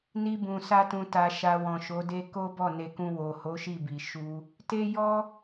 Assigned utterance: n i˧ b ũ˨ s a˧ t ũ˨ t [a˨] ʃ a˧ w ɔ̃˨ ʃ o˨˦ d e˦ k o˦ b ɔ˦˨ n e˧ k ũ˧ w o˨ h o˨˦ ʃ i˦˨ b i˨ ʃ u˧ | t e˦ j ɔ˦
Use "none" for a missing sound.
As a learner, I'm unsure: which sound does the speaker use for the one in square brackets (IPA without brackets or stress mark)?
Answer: a˨